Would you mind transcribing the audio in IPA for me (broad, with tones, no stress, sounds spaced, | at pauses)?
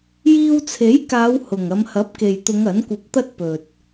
j iː˧ w t͡sʰ e˨˥ j k aː˨˧ w h ʊ˨˩ ŋ ɐ˨˧ m h ɐ˨˥ p̚ k e˨ j t̪ ʊ˨˧ ŋ ɐ˨˥ n kʷ ɐ˧ p̚ t̪ ɐ˥ t̚ p ɵ˨ t̚